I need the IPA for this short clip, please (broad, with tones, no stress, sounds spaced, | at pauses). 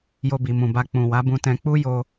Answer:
j o˧ b i˨ m ũ˨ b a˧ k͡p ũ˨ w a˨˦ b ũ˧ t ɛ̃˧ k͡p u˦ j o˧